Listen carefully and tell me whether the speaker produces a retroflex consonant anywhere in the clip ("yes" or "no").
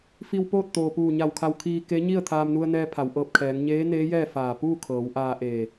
no